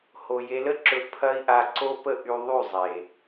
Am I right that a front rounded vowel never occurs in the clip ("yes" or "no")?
no